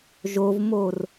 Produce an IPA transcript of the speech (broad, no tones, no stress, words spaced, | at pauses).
ʒovmor